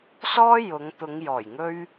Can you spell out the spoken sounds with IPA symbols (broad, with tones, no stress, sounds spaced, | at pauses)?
s ɔː˥ j ʊ˨˧ ŋ t̪ ʊ˨˧ ŋ j ɔː˨˩ j ŋ ɵ˥ ɥ